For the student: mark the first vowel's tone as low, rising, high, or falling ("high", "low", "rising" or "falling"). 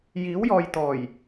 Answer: rising